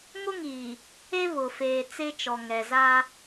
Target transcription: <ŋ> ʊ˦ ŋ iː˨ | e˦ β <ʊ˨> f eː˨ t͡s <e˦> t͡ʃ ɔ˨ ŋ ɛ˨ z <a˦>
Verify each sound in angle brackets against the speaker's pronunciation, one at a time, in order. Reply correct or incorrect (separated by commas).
correct, correct, correct, correct